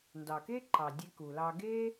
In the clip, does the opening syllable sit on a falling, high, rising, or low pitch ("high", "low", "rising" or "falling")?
low